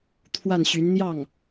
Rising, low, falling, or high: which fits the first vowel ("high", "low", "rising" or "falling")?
falling